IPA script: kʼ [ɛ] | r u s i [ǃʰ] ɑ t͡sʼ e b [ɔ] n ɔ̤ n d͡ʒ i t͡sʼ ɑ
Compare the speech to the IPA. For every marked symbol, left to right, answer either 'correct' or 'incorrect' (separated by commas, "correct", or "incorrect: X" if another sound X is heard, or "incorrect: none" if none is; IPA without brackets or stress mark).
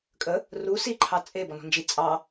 incorrect: ə, correct, correct